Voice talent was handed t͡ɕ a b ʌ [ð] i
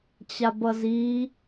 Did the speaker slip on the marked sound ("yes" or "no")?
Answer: yes